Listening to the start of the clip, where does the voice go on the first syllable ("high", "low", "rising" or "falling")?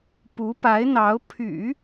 rising